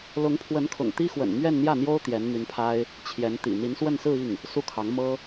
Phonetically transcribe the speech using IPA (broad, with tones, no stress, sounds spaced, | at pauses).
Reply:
l ʊ˧˥ ŋ pʰ w ə˧˥ n kʰ ʊ̰˨˩ ŋ t̪ i˥ x w ə̰˨˩ n m ɥ ɛ˥˧ n n̪ j ä˥˩ n̪ j o˥ ʊ̯ t̪ j ɛ˧˥ n m y˧˥ n pʰ a˥ ɪ̯ | t͡ɕʰ j ɛ˧˥ n t̪ ḭ˨˩ n̪ i˧˥ n s w ə˥˧ n s ɹ̩˥˧ i˥˩ ŋ | s u˥˩ kʰ ɑ˧˥ ŋ m ɤ˥